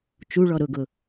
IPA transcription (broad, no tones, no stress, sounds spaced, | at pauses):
t͡ʃ u ɭ ɔ ɾ ʊ ɡ ʊ